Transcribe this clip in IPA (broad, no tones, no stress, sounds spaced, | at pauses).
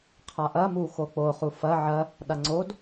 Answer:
qʰ a ʔ ɐ m u x o k͡p o χ u f ɐ ʕ ɐ | ɗ a ŋ͡ǀ o d